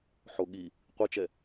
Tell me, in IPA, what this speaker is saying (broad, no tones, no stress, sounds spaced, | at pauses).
ħ o ɠ i | qʷ ɯ t͡ʃ ɛ